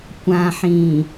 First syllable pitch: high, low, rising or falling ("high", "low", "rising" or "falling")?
low